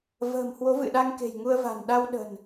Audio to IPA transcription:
v ə̤ː˨˩ m h w o˨˦ v ɨ̰˧˨ ɗ a˧ ŋ k e̤˨˩ j ŋ u˧ ə̯ v a̤˨˩ n ɗ a˧ w ɗ ə̤˨˩ n

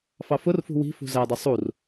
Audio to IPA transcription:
f ɑ f ʊ r f ṳ w i̤ f ṳ z æ dˤ ɪ sˤ u r

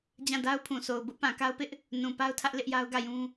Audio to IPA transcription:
d͡ʑ ã˦˨ d a˦ ʊ̯ pʰ ũ˨ sʰ o˨ ʊ̯ b ʊ˦ ʔ p ã˨ k a˦ ʊ̯ p ɪ˦ ʔ | n ũ˨ p a˦ ʊ̯ tʰ ä˦ ʔ l ɪ˦ ʔ j a˦ ʊ̯ ɡ ä˦˨ j ũ˦

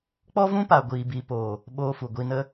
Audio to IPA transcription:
k͡p ɔ˦ v ũ˦ p a˨ ɡʷ iː˨ b i˨ p oː˨ | ɓ oː˧ f u˨ ɡʷ i˧ n ə˦

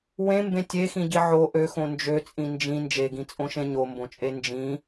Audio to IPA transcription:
w ẽ m b ẽ tʲ e x ĩ ɟ i ʕ o ʔ ø x õ n d͡ʒ ø t͡sʼ ĩ n d͡ʒ ĩ n d͡ʒ e ɡ ĩ t͡sʼ õ ʃ ẽ ɲ o m b õ t͡ʃʼ e n d͡ʒ ĩ

